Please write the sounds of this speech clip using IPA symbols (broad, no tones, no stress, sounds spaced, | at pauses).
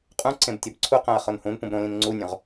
qʼ ũ ǀ ẽ b tʲ ɒ b ǀʰ u q æ̃ ɐ̯ χ o n h ũ n p ũ b ɾ õ l ĩ n ŋ͡ǀ u nʲ õ ʁ